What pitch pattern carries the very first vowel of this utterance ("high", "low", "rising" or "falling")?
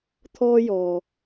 high